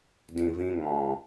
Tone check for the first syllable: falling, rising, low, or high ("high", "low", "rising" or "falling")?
low